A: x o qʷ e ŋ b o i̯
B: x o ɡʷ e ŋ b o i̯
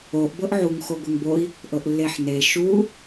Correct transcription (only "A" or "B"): B